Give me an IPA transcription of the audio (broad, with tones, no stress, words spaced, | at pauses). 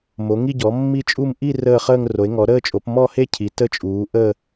mo˩˥ŋi˥˧ɟɔ˩˥ mːi˥˧t͡ʃʼu˥˧m ʔi˥˧ rəː˥˧χəː˥˧ŋro˩˥e̯ ŋɔ˩˥ ɾəː˥˧t͡ʃʼo˩˥p mɔ˥˧he˥˧ cʰi˩˥tə˥˧t͡ʃʼuː˩˥ ʔəː˥˧